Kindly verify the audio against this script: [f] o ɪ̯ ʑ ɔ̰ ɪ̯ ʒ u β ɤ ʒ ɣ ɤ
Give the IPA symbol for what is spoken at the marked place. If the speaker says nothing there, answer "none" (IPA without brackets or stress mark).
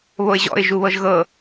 β